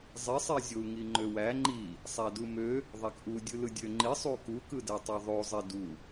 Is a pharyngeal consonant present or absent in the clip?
absent